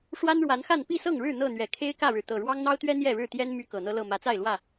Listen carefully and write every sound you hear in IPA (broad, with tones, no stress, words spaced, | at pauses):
ʂwa˦nɻwa˨˦nxa˥˨n pi˥˨sɤ˥˨ŋɻɻ̩˥˨ n̪ɤ˥˨n̪ɥɛ˨˩ kʰe˦ɪ̯kä˥˨ɻɻ̩˩ t̪ɤ˨˩ɻwɑ˦ŋn̪ɑ˦ʊ̯t̪ɥɛ˦ n̪jɛ˥˨ɻɻ̩˥˨t̪jɛ˦n my˦kɤ˨˩n̪ɤ˦lɤ˥˨ mä˨˦t͡sa˥˨ɪ̯lwä˥˨